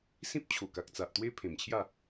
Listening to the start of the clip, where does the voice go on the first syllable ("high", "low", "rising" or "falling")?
high